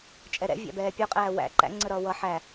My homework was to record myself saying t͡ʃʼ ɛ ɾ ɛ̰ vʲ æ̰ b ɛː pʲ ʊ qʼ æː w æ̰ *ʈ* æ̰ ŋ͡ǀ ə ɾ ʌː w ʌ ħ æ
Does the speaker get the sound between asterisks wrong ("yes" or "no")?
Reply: yes